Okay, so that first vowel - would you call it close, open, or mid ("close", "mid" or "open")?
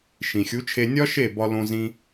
close